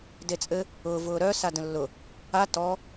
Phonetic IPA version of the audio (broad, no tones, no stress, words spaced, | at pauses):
det͡sʼɘ | ʊː vʊːɾœ sadə̃lːʊ | a tɔ